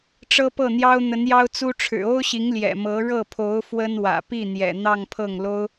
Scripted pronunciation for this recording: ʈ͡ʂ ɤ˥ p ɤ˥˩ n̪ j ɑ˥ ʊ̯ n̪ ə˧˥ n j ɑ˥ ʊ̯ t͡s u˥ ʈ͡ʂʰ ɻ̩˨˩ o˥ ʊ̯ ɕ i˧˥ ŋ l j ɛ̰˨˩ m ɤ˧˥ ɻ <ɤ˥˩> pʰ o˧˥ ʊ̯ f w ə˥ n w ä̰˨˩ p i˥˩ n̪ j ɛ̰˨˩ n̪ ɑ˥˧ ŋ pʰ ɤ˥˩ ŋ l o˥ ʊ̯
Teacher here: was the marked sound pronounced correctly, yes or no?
yes